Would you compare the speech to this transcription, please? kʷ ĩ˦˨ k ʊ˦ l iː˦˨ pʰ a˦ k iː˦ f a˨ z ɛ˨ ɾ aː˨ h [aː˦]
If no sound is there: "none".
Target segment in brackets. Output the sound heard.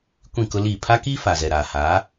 aː˨˦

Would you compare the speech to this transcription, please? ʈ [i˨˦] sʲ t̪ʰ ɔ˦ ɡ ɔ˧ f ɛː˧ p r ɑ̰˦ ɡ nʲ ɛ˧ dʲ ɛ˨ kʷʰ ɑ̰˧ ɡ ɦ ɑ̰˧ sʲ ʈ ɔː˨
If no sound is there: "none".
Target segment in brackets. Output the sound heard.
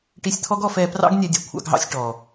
i˧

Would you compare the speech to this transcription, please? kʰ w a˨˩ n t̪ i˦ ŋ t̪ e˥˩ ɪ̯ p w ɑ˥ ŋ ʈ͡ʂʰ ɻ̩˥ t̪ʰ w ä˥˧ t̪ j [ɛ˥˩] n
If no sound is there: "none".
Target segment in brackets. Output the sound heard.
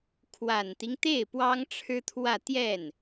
ɛ˥˩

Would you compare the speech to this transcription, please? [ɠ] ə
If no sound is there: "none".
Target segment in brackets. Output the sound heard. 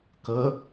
k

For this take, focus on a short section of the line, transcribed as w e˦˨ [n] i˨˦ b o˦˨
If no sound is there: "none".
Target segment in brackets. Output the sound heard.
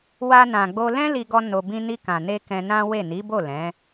n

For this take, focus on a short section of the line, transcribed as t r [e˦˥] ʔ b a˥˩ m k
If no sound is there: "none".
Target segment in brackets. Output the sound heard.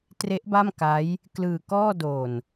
e˦˥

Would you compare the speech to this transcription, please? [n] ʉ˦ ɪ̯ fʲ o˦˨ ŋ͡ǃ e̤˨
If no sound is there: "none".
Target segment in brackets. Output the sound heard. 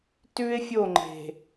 t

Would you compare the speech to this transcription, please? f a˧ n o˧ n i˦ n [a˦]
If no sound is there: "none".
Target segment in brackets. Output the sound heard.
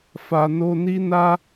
a˦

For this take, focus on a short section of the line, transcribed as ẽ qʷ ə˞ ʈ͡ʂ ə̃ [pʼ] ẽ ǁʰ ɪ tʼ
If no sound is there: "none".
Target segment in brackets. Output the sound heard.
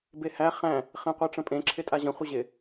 pʼ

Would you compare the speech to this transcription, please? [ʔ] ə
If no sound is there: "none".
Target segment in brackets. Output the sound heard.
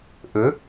ʔ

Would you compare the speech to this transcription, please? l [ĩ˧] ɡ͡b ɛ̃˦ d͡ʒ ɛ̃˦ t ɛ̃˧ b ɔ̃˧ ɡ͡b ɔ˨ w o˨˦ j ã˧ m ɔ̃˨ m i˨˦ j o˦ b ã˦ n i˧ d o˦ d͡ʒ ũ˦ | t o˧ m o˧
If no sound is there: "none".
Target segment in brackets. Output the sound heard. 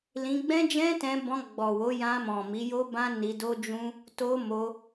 ĩ˧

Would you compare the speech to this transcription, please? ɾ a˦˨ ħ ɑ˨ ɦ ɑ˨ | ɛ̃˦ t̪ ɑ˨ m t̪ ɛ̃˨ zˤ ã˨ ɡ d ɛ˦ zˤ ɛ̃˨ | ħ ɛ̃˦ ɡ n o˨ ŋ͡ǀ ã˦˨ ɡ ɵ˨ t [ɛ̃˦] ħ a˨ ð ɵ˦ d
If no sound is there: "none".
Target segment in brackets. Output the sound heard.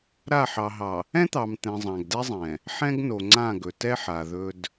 ɛ˦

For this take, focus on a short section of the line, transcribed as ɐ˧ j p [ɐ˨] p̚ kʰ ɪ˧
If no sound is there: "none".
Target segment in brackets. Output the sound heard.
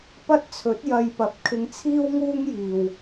ɐ˨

